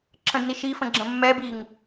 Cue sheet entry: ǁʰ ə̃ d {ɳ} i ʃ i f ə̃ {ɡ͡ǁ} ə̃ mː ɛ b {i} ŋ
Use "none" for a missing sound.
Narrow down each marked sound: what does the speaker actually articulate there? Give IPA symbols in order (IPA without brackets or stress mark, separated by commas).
n, ɡ͡ǁ, i